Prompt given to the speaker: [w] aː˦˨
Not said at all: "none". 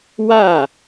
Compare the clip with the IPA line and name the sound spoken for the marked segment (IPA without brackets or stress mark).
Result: w